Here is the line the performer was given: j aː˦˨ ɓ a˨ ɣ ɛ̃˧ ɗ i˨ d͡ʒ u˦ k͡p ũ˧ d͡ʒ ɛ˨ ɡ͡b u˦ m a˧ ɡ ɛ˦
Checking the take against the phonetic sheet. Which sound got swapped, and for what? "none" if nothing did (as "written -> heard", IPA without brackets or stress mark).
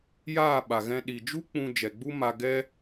none